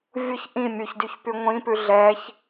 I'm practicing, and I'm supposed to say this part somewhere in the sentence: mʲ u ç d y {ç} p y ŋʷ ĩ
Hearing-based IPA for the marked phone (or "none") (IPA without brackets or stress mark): ç